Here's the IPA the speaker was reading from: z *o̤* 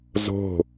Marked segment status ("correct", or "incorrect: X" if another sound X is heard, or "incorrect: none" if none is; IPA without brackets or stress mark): correct